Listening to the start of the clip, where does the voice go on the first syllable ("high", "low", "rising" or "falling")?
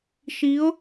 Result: rising